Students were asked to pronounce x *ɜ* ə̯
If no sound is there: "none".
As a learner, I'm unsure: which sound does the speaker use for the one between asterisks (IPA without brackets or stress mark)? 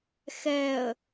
ɛ